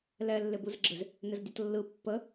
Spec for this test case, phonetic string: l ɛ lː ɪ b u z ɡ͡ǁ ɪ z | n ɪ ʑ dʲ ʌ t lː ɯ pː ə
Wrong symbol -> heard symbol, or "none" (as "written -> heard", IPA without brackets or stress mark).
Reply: ʑ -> z